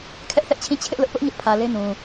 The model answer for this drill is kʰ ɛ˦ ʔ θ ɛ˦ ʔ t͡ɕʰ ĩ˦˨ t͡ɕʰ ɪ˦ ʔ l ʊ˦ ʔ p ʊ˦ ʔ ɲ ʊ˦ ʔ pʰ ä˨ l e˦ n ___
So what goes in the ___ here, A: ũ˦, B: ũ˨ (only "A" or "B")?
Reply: B